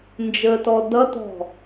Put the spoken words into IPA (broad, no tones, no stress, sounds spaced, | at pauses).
n d͡ʒ ə t ɔ d ʌ t ɔ̤